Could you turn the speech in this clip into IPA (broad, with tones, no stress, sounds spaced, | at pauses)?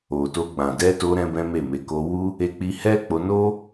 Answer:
o˨ t o˧ ɡ͡b ã˨ d ɛ˧ t o˧ ɾ ɛ̃˦ b ɛ̃˦ m e˦˨ m e˨˦ k o˧ w u˦ | e˧ k͡p i˧ h ɛ˦ k͡p o˧ n o˦